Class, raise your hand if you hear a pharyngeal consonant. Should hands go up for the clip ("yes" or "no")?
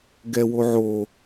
yes